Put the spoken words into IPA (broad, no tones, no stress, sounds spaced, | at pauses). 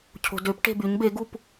cʰ o̤ d ø p ʈ e̤ b y ɲ b e ɡ u p